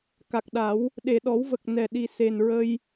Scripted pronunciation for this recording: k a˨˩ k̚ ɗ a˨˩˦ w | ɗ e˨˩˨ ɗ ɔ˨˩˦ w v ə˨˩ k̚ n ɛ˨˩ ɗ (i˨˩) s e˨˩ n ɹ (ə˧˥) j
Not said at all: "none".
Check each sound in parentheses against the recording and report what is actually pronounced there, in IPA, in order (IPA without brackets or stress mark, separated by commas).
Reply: i˨˩, ə˧